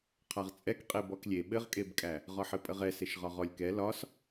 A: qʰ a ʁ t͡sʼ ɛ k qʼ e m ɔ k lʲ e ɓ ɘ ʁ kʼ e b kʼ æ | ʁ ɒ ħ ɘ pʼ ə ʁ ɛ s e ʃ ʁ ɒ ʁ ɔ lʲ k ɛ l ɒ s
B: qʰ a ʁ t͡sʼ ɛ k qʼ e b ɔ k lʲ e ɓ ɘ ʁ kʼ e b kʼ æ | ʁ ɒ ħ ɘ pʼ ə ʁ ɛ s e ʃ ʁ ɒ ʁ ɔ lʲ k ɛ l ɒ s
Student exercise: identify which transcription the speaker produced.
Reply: B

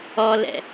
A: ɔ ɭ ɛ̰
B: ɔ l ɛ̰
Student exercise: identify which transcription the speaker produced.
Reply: B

